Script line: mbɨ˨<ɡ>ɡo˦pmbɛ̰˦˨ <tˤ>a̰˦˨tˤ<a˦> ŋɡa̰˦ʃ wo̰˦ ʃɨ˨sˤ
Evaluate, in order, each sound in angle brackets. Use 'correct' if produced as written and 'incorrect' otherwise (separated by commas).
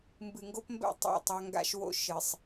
incorrect, correct, correct